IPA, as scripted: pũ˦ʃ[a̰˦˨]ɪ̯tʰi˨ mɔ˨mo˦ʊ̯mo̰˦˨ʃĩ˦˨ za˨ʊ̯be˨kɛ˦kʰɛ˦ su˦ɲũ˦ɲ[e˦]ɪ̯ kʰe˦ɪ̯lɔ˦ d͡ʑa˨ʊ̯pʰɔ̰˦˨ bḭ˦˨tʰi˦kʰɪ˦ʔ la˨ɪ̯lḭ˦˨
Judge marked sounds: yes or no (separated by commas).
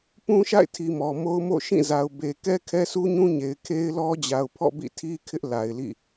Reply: yes, no